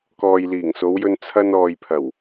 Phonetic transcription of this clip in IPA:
kɔː˨jliː˨˩ŋso˨˧wjɵ˧n t͡sʰɐ˧n ɔː˨jpʰɐ˨˩w

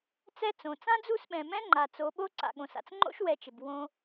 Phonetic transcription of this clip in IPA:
t͡sɛ˦t͡sõ˨ t͡sã˦d͡zu˦˨sɓɛ̃˨ mɛ̃˦ŋ͡ǃa˨ t͡so˨˦ɓo˦ ǀa̰˨ɠõ˨sa̰˧t͡s ŋ͡ǃo̰˦ʃwɛ˨˦t͡ʃɪ˨b wõ˦

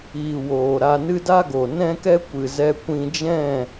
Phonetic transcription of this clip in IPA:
iː˨ woː˨ɾa˧nɨ˦ da˦ɡo˨ nɛ̃˦kɛ˦ kʷɨ˨zɛ˧kʷĩ˧d͡ʒɛ̃˦˨

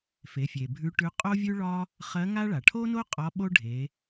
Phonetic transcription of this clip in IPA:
fe˩˧fʲe˩bʱʉ˧˥ʈʉ˧˥ qʼo˥vʲʉ˥ɭɒ˥ | χɜ˧˥ŋa˥ ɭa˩ʈʰo˥no˥ qʼɒ˧˥ ɓo˥ɖʱe˩˧

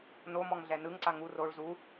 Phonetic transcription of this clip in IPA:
nomɔŋ ɮɛnɯŋǀa ŋu roɭ zu

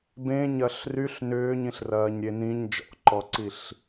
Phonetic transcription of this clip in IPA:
bẽɲɐɬ ryɬ nʏːɲĩɬrɐːɲɾʲe nĩɲ d͡ʒɔ̰ǃɔǀiɬ

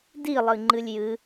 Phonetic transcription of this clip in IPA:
dilˠɨŋ͡ǃɨlʲ jɨ

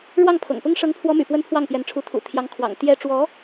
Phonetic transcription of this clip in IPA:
ɻwɑ˥˩ŋpʰɤ̰˨˩ŋ pʊ˥ŋ ʂɤ˧˥ŋpʰwɔ˧˥my̰˨˩ pwə˥npʰwɑ˥˩ŋpjɛ˧˥nʈ͡ʂʰu˧˥ t̪ʰṵ˨˩ t̪ʰjɑ˧˥ŋkʰwɑ̰˨˩ŋ t̪jɛ˥ ʈ͡ʂwɔ˧˥

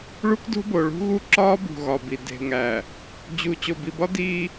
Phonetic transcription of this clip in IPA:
ɭu˦kdo̤˦bo˨ ɭṳ˦ɣu˦ ǁɒː˦ bṳ˨ɣɒ˨bi˨ de̤˨ŋæ˨ | d͡ʑu˨ t͡ɕo˨bi˨bɒ˦ diː˦

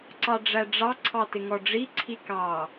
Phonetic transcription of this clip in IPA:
ǀɑɖ͡ʐæɖ͡ʐɑ ǀʰɑtɪŋɔɖ͡ʐi ǀʰikɑ

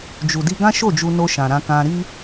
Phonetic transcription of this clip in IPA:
d͡ʒu˨di˧ ɡã˦ʃo˦˨d͡ʒu˧no˧ ʃã˨ɾã˧kã˧ ɾi˧

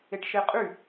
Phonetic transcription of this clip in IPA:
eʈʃeqʼy

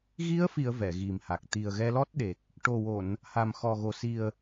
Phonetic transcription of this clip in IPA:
ɣi˧˥ə̯fi˨˩˨ə̯ vɛ˨˩˨ɣi˨˩mha˨˩k̚ t̪i˨˩ə̯ɣɛ˧lɔ˦˥t̚ɗe˨˩k̚ | ʈo˨˩wo˨˩˨n | ha˨˩mxɔ˨˩ɣo˨˩ si˨˩ə̯

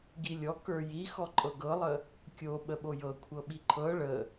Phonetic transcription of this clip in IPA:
ɡilʲɔ kə˞jixɔ ǃʼɤɡɤlˠə | kʲo ɓəɓojɤkʷʰɤ ɓiǃʰɤ ɭə

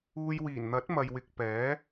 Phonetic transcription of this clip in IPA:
uː˧j wiː˨˩nn̪ɐ˨˥t̚ mɐ˨jwɪ˨k̚ pɛː˨˥

